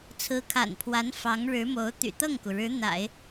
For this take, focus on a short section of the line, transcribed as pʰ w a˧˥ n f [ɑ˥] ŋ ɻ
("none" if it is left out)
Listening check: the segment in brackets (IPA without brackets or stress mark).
ɑ˧˥